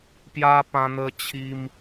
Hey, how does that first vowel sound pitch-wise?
high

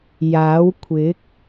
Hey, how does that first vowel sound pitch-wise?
rising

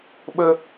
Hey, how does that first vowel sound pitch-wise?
high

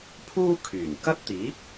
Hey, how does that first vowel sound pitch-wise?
high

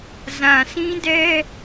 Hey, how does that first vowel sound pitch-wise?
low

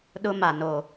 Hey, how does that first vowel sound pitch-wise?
high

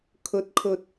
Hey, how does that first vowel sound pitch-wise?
rising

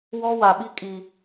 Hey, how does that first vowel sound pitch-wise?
high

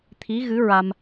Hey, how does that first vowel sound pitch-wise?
rising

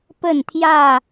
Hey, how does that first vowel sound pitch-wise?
falling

